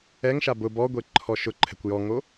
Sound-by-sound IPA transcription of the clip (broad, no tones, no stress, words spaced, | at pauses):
ɛŋʃa bʊ bɔɡʷe ǃʰɔʃʊǃʰɛ̤kʷ jɔŋo